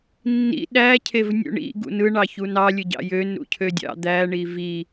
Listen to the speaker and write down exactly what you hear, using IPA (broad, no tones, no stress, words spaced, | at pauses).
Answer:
nːḭ ɗæcʰevnʲṵ ɳḭɡṵ nɯɳɑçu nɑlʲɯɟɑ̰ jønɾṵcʰødʲɑ̰ d̪æɳi vi